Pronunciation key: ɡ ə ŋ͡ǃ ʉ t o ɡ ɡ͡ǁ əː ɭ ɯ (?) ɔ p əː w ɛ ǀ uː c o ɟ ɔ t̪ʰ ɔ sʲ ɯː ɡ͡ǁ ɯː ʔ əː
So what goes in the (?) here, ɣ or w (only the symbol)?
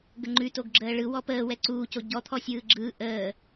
w